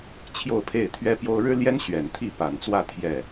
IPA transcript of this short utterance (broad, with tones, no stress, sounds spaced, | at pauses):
t͡ɕʰ j o˥˧ ʊ̯ pʰ e˥˩ ɪ̯ t̪ʰ ɥ ɛ˥ p j o˥ ʊ̯ ɻ ɻ̩˥ l j ɛ˥ n ɕ ɥ ɛ˨˩ n t̪ʰ i˥˩ p a˨˩ n t͡s w ä˥˧ t̪ʰ j ɛ˥˩